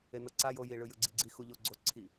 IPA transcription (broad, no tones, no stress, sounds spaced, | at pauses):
e n ɤ ǀ a j o j i ɭ ɯ j ɯ ɡ͡ǀ i ɡ͡ǀ i x u ʎ o ɡ͡ǀ o ǀʰ i